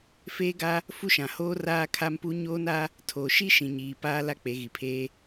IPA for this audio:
f eː˦ ɡ a˦ | f u˦ ʃ ã˨ h oː˦ r aː˦ kʰ a˦ m p u˦ ɲ oː˦ n a˦ | tʰ oː˨ ʃ i˦ ʃ ĩ˨ ɲ iː˨ p aː˦ l a˦ k͡p e˨˦ ɣ i˨ pʰ eː˦

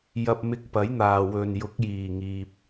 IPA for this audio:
j ɐ˧ p̚ m ɪ˧ k̚ p ɐ˨˥ j n̪ aː˨ w ɵ˨ n j ʊ˨˥ k̚ j iː˨˩ ŋ iː˨ p̚

